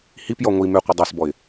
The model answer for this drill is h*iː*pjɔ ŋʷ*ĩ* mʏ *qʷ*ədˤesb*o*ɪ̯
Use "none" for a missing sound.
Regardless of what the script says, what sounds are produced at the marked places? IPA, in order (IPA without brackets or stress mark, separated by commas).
i, i, qʷ, ɔ